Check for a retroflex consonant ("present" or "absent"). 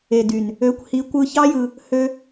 absent